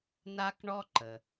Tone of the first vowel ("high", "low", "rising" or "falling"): high